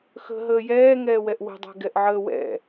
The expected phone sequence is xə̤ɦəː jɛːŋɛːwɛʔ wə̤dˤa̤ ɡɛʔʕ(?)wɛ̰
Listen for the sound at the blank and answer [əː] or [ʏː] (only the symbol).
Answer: əː